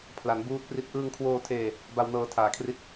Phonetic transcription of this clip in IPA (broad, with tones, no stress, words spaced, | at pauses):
pʰla˩˦n buː˦˥t̚pri˦˥t̚ ʔɯː˧ŋkʰwoː˧tʰeː˧ | ba˧wnɤː˧ tʰaː˨˩kʰri˥˩t̚